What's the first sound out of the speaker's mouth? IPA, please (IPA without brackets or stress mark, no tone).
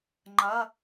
ŋ͡ǃ